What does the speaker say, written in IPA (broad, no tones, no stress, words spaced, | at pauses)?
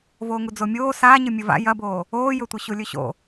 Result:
voːŋud͡zomʲoː saː ɲɨmʲɨva̰ jɐboː | oːjɵtʷɨ ɕulʲɵɕo̰